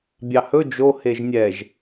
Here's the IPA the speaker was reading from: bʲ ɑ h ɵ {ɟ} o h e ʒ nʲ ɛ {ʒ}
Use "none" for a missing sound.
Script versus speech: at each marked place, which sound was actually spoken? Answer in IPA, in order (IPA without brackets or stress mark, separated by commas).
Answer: d͡ʒ, ʒ